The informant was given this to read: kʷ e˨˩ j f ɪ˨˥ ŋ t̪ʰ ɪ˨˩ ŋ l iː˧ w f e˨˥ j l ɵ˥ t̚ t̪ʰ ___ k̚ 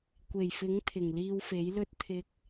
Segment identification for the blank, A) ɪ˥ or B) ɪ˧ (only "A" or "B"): B